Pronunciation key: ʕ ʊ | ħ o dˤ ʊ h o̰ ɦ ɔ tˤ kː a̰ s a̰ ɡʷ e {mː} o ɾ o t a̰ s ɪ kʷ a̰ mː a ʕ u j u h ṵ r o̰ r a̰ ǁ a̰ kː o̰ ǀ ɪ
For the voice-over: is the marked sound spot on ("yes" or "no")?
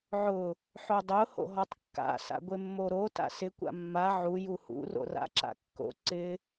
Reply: yes